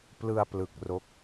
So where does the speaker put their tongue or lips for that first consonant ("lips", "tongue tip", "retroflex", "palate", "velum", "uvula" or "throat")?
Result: lips